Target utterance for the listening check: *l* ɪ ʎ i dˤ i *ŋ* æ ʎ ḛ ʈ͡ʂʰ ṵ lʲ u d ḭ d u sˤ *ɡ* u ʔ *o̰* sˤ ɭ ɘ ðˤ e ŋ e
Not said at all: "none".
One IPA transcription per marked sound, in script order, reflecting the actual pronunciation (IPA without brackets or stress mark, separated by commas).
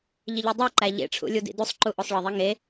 ʎ, ǃ, ǃ, o